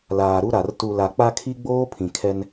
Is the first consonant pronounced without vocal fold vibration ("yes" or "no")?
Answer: no